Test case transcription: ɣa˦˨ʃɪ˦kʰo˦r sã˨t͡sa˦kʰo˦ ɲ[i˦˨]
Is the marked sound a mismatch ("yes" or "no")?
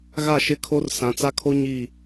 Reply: no